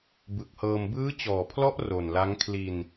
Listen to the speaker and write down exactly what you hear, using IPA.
b ɯ˨˩ k̚ h ɤː˧ m b ɯː˦˥ t͡ɕ ɔː˨˩ pʰ l ɔ˦˥ ʔ r o˨˩ n l a˦˥ ŋ kʰ l i˧ n

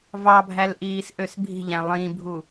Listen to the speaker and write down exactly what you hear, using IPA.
v ɑ bʱ æ l ʔ iː s ʔ ø s bʱ i̤ ʎ æ̃ lˠ ĩ bʱ u

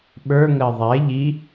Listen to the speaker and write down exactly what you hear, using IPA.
ɓ ə˞ ŋ ɜ ðˤ ɛ ʎ i

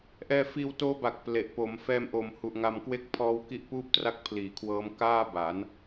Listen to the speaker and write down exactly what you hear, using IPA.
ʔ ɛː˧ f iː˧ w t oː˦˥ b a˨˩ k̚ p l e˨˩ ʔ p o˩˦ m f ɛː˧ m ʔ oː˨˩ m h u˨˩ ʔ ŋ a˧ m k w e˥˩ k̚ pʰ ɔː˦˥ w k i˦˥ ʔ p uː˥˩ p̚ t r a˥˩ k̚ pʰ l iː˨˩ kʰ w ɤː˦˥ m k aː˥˩ b a˩˦ n

